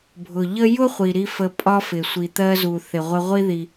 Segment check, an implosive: absent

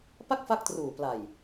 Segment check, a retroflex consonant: absent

